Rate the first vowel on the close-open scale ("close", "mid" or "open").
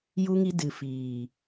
close